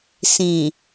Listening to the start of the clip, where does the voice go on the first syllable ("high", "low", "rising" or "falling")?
low